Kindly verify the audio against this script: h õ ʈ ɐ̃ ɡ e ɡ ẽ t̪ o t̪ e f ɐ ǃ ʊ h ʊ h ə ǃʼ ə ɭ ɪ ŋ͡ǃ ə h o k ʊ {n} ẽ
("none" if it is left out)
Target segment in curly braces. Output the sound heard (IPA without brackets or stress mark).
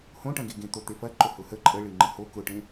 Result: ʈ